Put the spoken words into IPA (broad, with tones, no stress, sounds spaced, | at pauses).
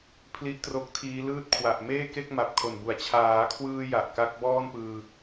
pʰ l i˦˥ ʔ t r o˦˥ k̚ tʰ iː˦˥ l ɯː˦˥ t̚ kʰ w a˨˩ ʔ m eː˥˩ k e˥˩ k̚ m a˨˩ p̚ kʰ o˨˩ n b u˩˦ a̯ t͡ɕʰ aː˩˦ kʰ w ɯː˧ j a˨˩ ʔ k a˦˥ k̚ b ɔː˥˩ n p ɯː˧